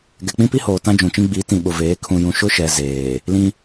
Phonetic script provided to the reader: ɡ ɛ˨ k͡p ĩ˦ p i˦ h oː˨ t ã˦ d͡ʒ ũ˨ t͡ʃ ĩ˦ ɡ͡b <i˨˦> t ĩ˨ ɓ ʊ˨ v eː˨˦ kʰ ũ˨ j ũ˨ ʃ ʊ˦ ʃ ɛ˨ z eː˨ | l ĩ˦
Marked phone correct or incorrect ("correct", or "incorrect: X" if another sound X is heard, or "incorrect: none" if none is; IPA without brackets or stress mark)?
correct